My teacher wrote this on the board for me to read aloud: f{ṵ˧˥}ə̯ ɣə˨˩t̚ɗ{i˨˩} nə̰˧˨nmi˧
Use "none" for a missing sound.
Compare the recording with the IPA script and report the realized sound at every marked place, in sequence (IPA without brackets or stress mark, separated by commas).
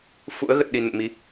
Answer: ṵ˧˥, i˨˩